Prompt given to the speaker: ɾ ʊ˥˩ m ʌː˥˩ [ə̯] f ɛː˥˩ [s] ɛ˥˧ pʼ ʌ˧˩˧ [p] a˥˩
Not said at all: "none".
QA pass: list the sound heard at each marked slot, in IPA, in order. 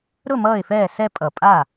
ɪ̯, s, pʼ

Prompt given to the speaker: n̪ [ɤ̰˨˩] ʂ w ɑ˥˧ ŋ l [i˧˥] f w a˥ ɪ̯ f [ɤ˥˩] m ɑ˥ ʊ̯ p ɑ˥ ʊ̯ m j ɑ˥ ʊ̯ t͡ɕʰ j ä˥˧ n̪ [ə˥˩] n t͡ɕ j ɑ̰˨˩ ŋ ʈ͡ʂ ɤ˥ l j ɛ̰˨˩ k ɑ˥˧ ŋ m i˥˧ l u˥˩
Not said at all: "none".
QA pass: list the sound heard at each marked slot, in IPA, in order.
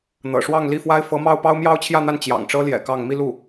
ɤ̰˨˩, i˥˩, ɤ˧˥, a˥˩

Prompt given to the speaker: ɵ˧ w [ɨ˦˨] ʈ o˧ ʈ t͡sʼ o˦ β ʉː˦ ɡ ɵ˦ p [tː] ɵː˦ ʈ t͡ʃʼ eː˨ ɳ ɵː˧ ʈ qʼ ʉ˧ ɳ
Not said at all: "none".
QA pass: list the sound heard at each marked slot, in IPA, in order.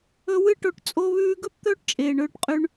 ɨ˦˨, t̪

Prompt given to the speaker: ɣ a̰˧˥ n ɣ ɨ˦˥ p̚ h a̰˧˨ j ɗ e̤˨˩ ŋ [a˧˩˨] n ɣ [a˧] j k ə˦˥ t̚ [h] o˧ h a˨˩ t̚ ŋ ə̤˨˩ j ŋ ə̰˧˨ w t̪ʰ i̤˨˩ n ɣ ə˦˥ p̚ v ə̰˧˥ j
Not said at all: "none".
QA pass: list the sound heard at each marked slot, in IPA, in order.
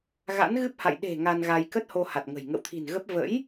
a˧, a˧, h

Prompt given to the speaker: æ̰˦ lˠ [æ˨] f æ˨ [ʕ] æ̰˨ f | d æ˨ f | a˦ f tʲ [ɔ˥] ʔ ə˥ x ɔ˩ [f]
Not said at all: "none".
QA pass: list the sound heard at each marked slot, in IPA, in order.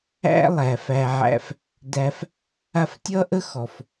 æ˩, ʕ, ʌ˥, f

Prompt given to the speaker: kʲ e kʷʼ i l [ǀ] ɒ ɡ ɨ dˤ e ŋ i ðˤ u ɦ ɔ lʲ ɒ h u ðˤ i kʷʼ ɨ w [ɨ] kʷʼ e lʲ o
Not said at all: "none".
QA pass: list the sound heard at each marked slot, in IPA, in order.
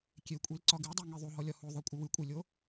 ǀ, ɨ

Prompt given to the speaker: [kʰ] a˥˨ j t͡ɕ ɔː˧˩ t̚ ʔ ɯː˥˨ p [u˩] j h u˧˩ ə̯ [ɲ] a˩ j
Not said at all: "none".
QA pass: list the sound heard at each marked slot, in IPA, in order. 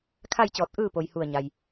kʰ, o˩, ɲ

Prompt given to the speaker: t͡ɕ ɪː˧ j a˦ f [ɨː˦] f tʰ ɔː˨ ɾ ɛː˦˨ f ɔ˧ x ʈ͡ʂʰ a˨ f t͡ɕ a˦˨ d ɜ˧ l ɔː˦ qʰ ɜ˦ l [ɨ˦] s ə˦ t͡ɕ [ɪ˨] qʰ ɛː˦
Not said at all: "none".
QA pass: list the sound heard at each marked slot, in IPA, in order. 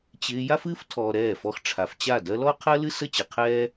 ɨː˦, ɨ˦, ɪ˨

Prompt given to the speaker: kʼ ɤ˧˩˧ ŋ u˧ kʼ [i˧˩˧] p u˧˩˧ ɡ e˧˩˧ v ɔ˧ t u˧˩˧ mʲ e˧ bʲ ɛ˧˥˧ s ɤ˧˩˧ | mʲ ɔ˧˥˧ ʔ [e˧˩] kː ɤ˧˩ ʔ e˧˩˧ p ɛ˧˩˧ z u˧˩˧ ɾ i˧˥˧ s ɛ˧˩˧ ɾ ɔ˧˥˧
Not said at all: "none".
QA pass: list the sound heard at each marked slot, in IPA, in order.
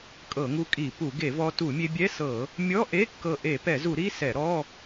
i˧˩˧, e˧˥˧

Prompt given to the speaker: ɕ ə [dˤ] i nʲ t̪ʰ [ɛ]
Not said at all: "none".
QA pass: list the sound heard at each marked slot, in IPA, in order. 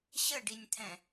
ɖ, ɛ̃

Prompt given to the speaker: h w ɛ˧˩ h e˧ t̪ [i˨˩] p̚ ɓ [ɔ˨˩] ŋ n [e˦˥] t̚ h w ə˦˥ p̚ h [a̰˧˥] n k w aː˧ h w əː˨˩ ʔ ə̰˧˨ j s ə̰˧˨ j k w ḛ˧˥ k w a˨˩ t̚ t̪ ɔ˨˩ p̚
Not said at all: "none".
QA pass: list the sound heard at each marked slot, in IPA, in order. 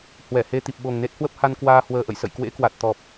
i˨˩, o˨˩, e˦˥, a˧

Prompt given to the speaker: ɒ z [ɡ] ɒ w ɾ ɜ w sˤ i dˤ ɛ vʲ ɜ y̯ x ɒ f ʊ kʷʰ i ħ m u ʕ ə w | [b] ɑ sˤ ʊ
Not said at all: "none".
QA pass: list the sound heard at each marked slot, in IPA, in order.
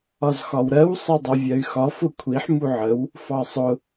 x, f

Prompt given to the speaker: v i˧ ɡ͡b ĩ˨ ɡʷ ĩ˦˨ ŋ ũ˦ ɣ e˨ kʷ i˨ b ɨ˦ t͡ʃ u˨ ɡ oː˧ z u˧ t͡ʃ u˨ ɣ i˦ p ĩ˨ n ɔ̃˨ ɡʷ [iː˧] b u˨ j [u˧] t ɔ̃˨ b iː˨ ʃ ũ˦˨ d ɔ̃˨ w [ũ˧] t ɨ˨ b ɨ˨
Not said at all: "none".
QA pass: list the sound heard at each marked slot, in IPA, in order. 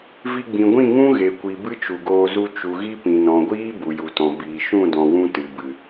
iː˦, u˨, ũ˧

